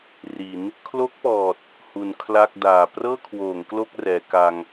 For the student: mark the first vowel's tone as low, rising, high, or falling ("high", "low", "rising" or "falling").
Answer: rising